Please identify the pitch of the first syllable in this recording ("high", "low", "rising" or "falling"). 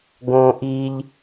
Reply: low